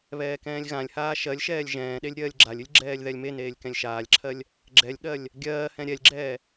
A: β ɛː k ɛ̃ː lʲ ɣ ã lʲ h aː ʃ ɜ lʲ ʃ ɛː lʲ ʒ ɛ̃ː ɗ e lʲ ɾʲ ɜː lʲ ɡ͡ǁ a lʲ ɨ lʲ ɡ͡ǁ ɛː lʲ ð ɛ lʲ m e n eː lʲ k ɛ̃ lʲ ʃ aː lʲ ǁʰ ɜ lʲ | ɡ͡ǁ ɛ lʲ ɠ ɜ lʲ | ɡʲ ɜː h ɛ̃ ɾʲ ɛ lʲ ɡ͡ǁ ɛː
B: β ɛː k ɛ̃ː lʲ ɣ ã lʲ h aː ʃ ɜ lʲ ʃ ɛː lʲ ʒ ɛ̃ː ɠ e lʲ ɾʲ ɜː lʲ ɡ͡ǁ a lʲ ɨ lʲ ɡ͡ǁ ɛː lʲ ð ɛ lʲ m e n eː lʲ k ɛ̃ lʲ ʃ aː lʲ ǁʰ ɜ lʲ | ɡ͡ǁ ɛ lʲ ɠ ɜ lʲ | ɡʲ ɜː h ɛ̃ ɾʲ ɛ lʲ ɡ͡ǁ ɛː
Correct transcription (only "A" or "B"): A